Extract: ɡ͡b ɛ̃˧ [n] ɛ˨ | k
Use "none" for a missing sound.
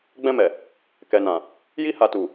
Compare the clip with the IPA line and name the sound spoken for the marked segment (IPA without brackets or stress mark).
m